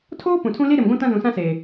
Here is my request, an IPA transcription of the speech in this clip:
tʰ oː˦ p ũ˨ tʰ ũ˦ l i˦ ɾ ɪ˨ m ɡʷ ũ˦ t ã˦ z ũ˨ s ã˦ s eː˨

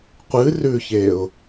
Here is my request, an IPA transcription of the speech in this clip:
qʷ ɨ r ʉ ç e ʊ̯

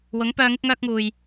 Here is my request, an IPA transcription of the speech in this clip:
w ʊ˨˥ ŋ p œː˧ ŋ ɪ˧ k̚ ŋ œː˧ k̚ ŋ uː˨ j

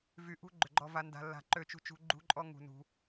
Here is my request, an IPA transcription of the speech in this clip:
v y˨ ʔ ṳ˦ ɡ͡ǃ ʏ˨ ɡ͡ǃ ɔ˨ v a˨ n d a̤˨ lː a̤˨ ǃ ø˨ t͡ʃ ṳ˨ t͡ʃ ṳ˨ ɡ͡ǃ ṳ˦ ǃʼ ɔ˦ ŋ ṳ˨ n ṳ˨

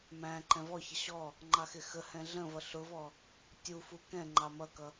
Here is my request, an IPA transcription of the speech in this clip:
m æ̃ ǃ ɛ̃ v ɔ ç ə ɕ ɔ | ŋ͡ǃ ɑ x ɪ x ə h ɛ̃ ɮ ə̃ v ʌ ɬ ʊ v ɔ | tʲ u f u k ɛ̃ ŋ͡ǃ ɑ m ʌ k ʌ

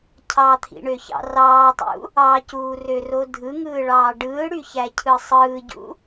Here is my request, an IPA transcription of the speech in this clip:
cʰ ɑ t̪ʰ ḭ ɳ ø ç ɑ̰ r ɑː tˤ ṵ | ɑ c uː r ø r o dʱ ɯ ŋ ɯː ɭ ɑː ɖ ɯː ɽ y ç æ cʰ ɯ sˤ ɯː ɟ ṵ

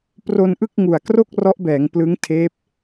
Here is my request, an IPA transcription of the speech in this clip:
p r o˧ n ʔ ɯ˥˩ k̚ ŋ u˨˩ a̯ k r o˥˩ k̚ r ɔ˦˥ ʔ b ɛː˩˦ ŋ p l ɯ˦˥ ŋ tʰ eː˦˥ p̚

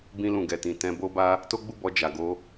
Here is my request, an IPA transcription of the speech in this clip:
b ĩ˧ l ũ˨ ɡ ɛ˨ t ĩ˨ t ɛ̃˧ b o˦ b a˦ | t o˦ ɡ͡b u˦˨ b ɔ˧ d͡ʒ a˨ ɡ o˧

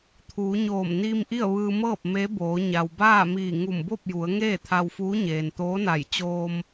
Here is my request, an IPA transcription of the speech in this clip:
t̪ʰ uː˩˧ ɲ oː˧˩ m n iː˧ m ʔ i˥˨ ə̯ ʋ ɯː˧ m ɤː˥˨ p̚ m e˧˥ b oː˩˧ ɲ a˩ w b aː˥˨ m iː˧˩ ŋ u˧˩ m b o˥˨ p̚ j u˩˧ ə̯ ŋ eː˥˨ t̪ʰ a˧ w f uː˧˥ ɲ eː˩ n t̪ oː˧˥ n a˧˩ j t͡ɕ oː˧ m

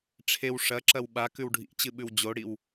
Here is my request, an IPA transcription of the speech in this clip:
ʈ͡ʂʰ e w ʂ ɐ ǁ ɐ w ɓ a k ʉ w ɖʱ ḭ t͡ɕ ɨ ɓ ʉ w d͡ʑ o ɽ i w

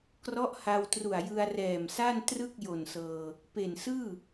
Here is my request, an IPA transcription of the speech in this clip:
k r ɔ˦˥ ʔ h a˧ w t r u˨˩ a̯ j ɯ˧ a̯ r ɛː˨˩ m s a˥˩ n t r ɯ˥˩ k̚ j o˨˩ n s ɤː˧ | p e˨˩ n s ɯː˥˩

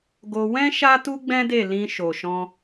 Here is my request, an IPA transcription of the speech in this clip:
ɡ o˧ w ɛ̃˦ ʃ a˦ t u˦ ɡ͡b ɛ̃˦ d e˦˨ l ĩ˧ ʃ o˨ ʃ ɔ̃˧

